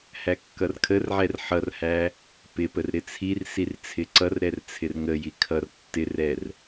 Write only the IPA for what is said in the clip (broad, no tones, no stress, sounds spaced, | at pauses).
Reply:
h æ kː ʌ r kʰ ə r ʕ ɛ r ħ ʌ r h æ | p ɪ p ə r ɾ ɪ t͡sʰ i r s i r t͡sʰ ɪ ǀ ʌ r ɾ ɛ r t͡sʰ ɪ r ŋ ə j i kʰ ʌ r tː ɪ r ɛ r